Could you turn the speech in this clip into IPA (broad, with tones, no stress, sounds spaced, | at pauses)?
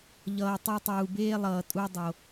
ʎ ʌː˨ tˤ u˧ tˤ uː˨ b eː˦ lˠ ʌː˨ tʼ u˧ dˤ o˨